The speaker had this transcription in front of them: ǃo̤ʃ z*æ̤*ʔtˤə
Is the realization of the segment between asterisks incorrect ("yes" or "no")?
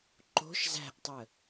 no